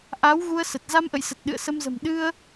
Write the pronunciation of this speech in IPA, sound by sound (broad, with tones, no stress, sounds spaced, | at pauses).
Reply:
ʔ a˨˦ w ɣ u˧ ə̯ s ə˨˩ t̚ z a˧ m ʔ ə̰˧˨ j s ə˨˩ t̚ ɗ ɨ̰˧˨ ə̯ s ə˧ m z ə̤˨˩ m ɗ ɨ˧ ə̯